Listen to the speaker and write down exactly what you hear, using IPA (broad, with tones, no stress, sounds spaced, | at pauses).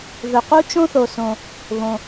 ð ɵ˩ q u˥ t͡ʃ õ˥ θ o˩ s õ˩ | β õ˩